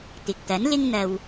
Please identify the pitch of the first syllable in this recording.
low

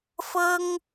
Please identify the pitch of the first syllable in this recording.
high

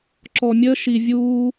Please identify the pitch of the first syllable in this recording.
low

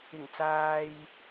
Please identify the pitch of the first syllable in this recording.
low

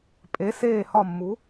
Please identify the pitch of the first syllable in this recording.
rising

